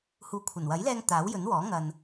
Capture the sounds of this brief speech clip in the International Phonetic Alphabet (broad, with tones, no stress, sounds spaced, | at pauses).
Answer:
h uː˨ kʷʰ ɐ˨˩ n w ɐ˨˥ j l ɛː˧ ŋ t̪ aː˨˥ w j ɵ˨˥ n w ɔː˨˥ ŋ ɐ˨ n